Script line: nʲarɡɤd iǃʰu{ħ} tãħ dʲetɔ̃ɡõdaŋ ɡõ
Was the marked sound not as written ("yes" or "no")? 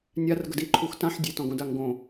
yes